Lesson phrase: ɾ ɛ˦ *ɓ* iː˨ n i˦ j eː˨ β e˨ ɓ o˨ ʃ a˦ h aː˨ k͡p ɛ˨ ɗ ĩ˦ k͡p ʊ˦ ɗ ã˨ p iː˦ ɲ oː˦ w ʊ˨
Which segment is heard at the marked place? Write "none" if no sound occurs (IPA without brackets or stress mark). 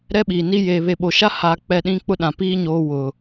ɓ